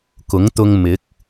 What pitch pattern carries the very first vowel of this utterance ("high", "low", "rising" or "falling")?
rising